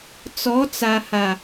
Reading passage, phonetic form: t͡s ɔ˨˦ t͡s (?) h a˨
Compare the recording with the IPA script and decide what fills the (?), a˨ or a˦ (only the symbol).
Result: a˨